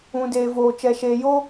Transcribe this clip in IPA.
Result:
ũ˨ d eː˨ v oː˨ t͡ʃ ɛ˨ ʃ eː˨ j o˦

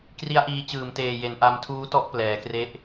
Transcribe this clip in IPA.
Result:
k r i˦˥ a̯ ʔ iː˧ t͡ɕ ɯː˨˩ m t eː˨˩ j e˩˦ n ʔ a˧ m tʰ uː˦˥ t ɔ˦˥ ʔ p l ɛː˩˦ k r e˦˥ ʔ

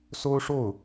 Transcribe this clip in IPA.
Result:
s o˥ ʊ̯ ʂ o˥˩ ʊ̯

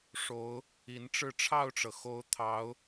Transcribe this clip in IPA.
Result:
ʂ o˧˥ ʊ̯ | i˧˥ n ʈ͡ʂ ɻ̩˥˧ ʈ͡ʂʰ ɑ˥˩ ʊ̯ ʈ͡ʂ ɤ˩ x o˧˥ ʊ̯ t̪ʰ ɑ˧˥ ʊ̯

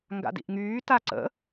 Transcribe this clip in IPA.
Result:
ŋ ɡ a̰ d ḭ ʔ ŋ yː t a ǀ ə̰

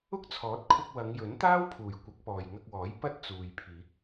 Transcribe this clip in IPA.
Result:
ʊ˥ k̚ t͡sʰ ɔː˨˥ t̚ kʰ ʊ˧ k̚ w ɐ˨˧ ŋ j ɵ˨˥ n t̪ aː˥ w pʰ uː˨˩ j kʷ ɐ˨˥ k̚ p ɔː˨ j ŋ ɐ˧ k̚ w ɔː˨˥ j p ɐ˥ t̚ t͡s uː˨ j pʰ iː˨˥ k̚

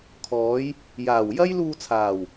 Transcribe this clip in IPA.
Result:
kʰ ɔː˨˧ j | j aː˨˩ w j ɐ˥ j l uː˧ t͡sʰ aː˨˩ w

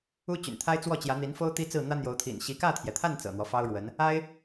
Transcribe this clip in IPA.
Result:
u˥ t͡ɕ y̰˨˩ n t̪ʰ a˥ ɪ̯ t͡s w ɔ˥˩ t͡ɕ j ä˧˥ n̪ i˧˥ n f o˥ ʊ̯ t̪ i˥ t͡s ɹ̩˥˩ n̪ ä˥ n̪ j o˧˥ ʊ̯ t̪ʰ ḭ˨˩ n ɕ i˧˥ k ä˥˩ t̪ʰ j ɛ˩ t̪ʰ a˥˩ n t͡s ɤ̰˨˩ n̪ w ɔ˦ f ɑ˥ ʊ̯ ɻ w ə˧˥ n | a˥ ɪ̯

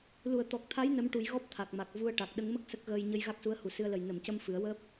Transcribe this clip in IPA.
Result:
l u˨˩˨ ə̯ t̪ ɔ˨˩ k̚ t̪ʰ a˧˥ j n ə˧˥ m ʈ u˨˩˦ j ɣ ɔ˦˥ p̚ t̪ʰ a˨˩ k̚ m a˨˩ k̚ v u˧ ə̯ ʈ a˨˩ k̚ ɗ ə˧˥ ŋ m ə˦˥ k̚ s ə˦˥ k̚ ɣ əː˧ j ɲ ə˧ j ɣ a˦˥ k̚ s u˧˥ ə̯ h u˨˩ s ɨ˧ ə̯ l ə˨˩ j n ə˨˩˨ m c ə˧ m f ɨ˨˩˦ ə̯ w əː˦˥ p̚

